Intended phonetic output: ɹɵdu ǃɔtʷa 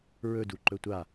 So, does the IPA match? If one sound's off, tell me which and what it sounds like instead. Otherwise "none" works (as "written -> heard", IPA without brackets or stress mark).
ɔ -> ɵ